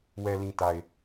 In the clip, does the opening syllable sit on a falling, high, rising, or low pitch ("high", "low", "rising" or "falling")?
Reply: low